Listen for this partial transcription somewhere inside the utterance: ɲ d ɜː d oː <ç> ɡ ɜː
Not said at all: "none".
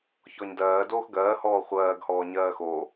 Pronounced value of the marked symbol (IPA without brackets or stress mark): x